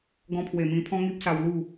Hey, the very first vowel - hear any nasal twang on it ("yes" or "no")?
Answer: yes